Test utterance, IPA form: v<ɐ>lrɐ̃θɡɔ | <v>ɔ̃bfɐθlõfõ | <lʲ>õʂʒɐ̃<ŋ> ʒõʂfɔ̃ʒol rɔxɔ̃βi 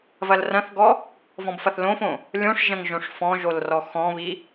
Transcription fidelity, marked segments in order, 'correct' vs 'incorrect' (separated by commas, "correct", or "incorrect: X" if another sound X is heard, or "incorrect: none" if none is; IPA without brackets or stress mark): correct, correct, correct, correct